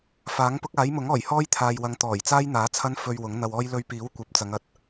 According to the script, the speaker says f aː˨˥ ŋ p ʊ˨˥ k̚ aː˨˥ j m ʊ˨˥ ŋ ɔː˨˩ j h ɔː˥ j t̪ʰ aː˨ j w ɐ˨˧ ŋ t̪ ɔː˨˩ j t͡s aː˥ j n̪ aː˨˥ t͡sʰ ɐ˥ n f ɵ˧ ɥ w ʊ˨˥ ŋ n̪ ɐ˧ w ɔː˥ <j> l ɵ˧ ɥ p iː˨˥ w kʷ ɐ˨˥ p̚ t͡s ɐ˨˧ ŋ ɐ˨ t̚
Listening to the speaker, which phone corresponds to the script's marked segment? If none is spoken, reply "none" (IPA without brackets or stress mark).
j